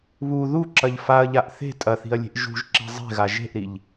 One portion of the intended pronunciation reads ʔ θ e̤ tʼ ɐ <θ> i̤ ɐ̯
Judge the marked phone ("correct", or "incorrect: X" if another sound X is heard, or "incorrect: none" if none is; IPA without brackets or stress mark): correct